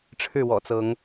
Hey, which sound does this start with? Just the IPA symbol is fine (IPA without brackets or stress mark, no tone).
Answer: ʈ͡ʂʰ